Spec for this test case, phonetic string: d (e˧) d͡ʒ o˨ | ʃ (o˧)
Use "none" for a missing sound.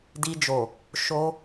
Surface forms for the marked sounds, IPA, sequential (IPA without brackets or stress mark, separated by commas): i˧, o˧